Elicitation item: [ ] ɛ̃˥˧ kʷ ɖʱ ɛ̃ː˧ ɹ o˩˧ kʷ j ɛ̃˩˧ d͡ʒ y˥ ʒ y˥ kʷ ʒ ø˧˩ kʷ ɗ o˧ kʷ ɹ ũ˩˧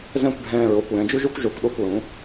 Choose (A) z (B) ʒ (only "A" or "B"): A